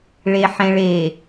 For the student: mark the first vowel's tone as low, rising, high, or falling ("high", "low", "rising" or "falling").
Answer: low